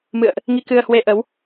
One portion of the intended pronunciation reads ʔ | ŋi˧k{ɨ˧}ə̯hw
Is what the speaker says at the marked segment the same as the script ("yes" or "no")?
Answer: yes